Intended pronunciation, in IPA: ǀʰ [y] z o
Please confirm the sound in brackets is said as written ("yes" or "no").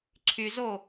yes